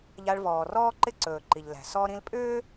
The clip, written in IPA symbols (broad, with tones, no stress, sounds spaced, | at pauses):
ʎ a˨ ɭ v ɔː˩ r ɔː˦ ǃ ɪ˦ ǀ ɵː˩ ǃ i˩ ʎ l æ̤˩ s ɔ˦ ɾ ĩ˦ l pʼ ʏː˥